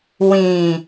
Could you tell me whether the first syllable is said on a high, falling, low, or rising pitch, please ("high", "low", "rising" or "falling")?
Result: low